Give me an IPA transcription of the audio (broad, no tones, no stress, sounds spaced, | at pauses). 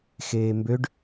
x eː m b ø ɖ